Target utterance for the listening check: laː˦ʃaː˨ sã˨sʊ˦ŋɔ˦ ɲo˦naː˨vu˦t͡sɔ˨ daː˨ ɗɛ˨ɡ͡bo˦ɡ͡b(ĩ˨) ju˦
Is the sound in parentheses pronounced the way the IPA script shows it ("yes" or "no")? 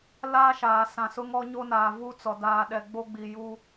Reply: no